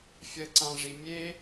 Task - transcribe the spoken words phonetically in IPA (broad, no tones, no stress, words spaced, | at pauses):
fʲɜǀãʐimʲe